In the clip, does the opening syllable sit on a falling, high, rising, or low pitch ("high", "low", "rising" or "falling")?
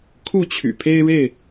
falling